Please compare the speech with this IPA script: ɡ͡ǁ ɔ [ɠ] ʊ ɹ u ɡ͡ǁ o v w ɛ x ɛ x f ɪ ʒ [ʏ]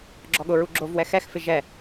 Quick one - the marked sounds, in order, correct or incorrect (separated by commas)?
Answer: correct, incorrect